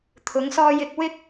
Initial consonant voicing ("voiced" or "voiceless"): voiceless